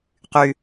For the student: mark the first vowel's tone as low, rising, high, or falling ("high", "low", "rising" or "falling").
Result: low